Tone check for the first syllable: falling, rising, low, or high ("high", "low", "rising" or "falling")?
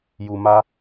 low